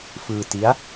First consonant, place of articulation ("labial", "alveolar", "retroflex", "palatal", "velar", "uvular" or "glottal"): labial